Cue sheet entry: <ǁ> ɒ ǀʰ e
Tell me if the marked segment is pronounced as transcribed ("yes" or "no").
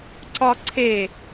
no